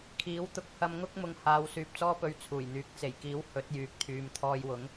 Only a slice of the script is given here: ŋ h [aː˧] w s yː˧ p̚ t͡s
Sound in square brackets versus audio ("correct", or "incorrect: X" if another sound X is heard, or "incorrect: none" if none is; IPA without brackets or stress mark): correct